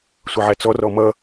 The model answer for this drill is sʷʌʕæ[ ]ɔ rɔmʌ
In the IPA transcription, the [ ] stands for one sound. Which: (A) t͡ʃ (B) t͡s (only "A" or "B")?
B